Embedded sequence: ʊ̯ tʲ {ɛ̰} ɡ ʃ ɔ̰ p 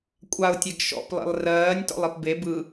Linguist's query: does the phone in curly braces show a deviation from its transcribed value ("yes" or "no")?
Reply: yes